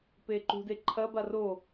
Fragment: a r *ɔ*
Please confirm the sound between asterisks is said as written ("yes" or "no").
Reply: no